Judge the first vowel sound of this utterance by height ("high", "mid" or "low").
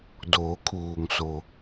mid